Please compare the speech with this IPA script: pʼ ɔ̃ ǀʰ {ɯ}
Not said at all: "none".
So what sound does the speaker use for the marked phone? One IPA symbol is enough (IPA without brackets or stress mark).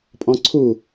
u